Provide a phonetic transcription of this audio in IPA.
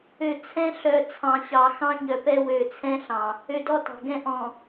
ø˨ t͡sʰ ɛ̃˦ ɬ œ˨ t͡sʰ ɑ̃˨ ɕ ɑ˨ x ɑ̃˦ ɲ œ˨ p ɛ˦ w ø˨ t͡sʰ ɛ̃˦ ɬ ɑ̃˨ | ø˨ d ɔ˦ t ɑ̤˨ ɡ ɛ̃˦ ʔ ɔ̃˨

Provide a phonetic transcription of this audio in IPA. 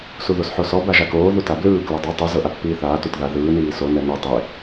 s u ð o s ħ o s ɔ b a ʒ a k oː ð u t a b l ɯː k l ɤ dˤ e tˤ u z ɤ ʔ a pː iː θ aː t u t ð a ð ɯː n iː s o n ɛ n u tˤ e

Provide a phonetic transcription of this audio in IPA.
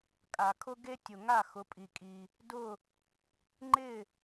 kʼ a˩ kʰ ʊ˥ ɡ e˥ tʲ ʊ˩ ŋ a˥˩ x ʊ˩˥ pʼ i˩ kʼ i˩ | d ʊ˥˩ | ŋ͡ǃ ɪ˥˩

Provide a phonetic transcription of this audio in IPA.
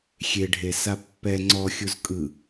xʲ e ɖʱ e s a pː ɛ ŋ͡ǀ ɔ xʲ u z kʼ ɯ

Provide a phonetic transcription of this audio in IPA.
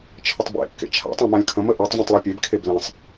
t͡ʃʰ ə tˤ b ḛ kː ḛ t͡ʃʰ a̰ tˤ ã m ã lʲ kʰ ə̃ m ə ʔ ø tˤ vʲ ẽ tˤ lˠ e pʲ e b kʰ e b l ẽ sˤ

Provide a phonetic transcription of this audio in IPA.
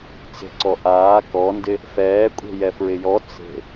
t͡s e̤ ǀ ɔ ʔ aː k ɔ n d ɪ | f ɛː kʷʼ e̤ j ɛ f ɹ ɪ j ɔ t͡s e̤

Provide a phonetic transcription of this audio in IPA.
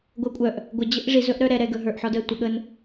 ɡʷ əː kʷʼ œ ʔ | ɡʷ ə d͡ʑ ə ʔ ʐ i z ɵ ʔ ɾ œ ɾ ɛ ɾ ɛ ɡ ɵ ɦ ə˞ ʔ ħ ɔ d əː tʷ ə ɠ əː n

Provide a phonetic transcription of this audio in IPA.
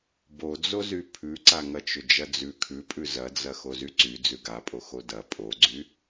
b o d͡z o z y pʰ ʉ ǀ a ŋ ɐ t͡ʃ ʏ d͡ʒ ɐ d͡z ʉ kʰ ʉ pʼ ʉ z ɐ d͡z ɐ x o z y ǀ y d͡z ʉ ɡ a pʼ o x o d ɐ pʼ o ɡ͡ǀ y

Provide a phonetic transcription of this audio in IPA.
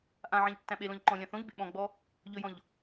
ʔ ã ʕ ã ʎ tː æ̃ ɓ e l ɔ̃ ʎ ǃ ɔ̃ lʲ ã θ õ ʎ b ḛ ɓ ɔ̃ ɡ͡b ɔ | ʎ ɵ j ɔ̃ ʎ

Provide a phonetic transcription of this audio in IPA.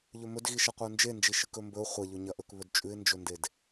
ʎ ɵ m ɵ d ɣ i ʃ ɐ qʷ ɨ ʊ̯ n d͡ʒ e n d͡ʒ i ʃ ɨ k ɵ m b ɵ ʊ̯ χʷ ɐ ʎ ɵ ɲ ɐ ʔ ɵ k β ɵ d t͡ʃʼ ʉ ɪ̯ n d͡ʒ ɵ n d e d

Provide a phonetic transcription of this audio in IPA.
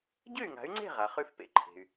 ɟ ɨ˥˩ y̯ ŋ a̤˩˥ y̯ ŋ͡ǀ e̤˥˩ ʁ a˩ χ ʉ˥˩ f p ḛ˧ ǃʰ e̤˩ y̯

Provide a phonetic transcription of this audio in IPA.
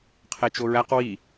qʰ e t͡ʃ o ɹ æ q w i

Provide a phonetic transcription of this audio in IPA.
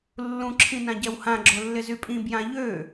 lː ũ ǁʰ ĩ n ã ɟ ɛ w h ã ɡ͡ǁ o lː ɪ z y pʼ ĩ b j ã ʎ ø

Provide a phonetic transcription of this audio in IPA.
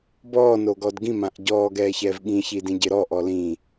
b ɔː n o ɡ ɔ d ɡ ĩ m ã ʔ ɟ ɔː ɡ ɛː ç ɛː v ɠ ĩ ç i d ĩ ɟ ɪ ɾ ɔ ʔ ɔ l ĩ

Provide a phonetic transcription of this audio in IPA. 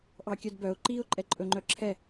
ʔ ɑ kʲ œ d b œ ʊ̯ ǃ i ʊ̯ ǃʼ ɛ ǃʼ ɵ ŋ͡ǃ œ ǁʰ ɛ

